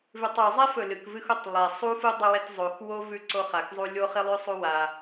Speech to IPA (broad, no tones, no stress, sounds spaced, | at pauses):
v ʉ tˤ ʉ zˤ ɛ f ɵ l ɨ k v ɨ x u tˤ lˠ ɛ sˤ u f u dˤ ɵ w ɛ t zˤ o x w o v ʉ ǀ o χ a k zˤ u lʲ o χ i lˠ ʉ sˤ u w a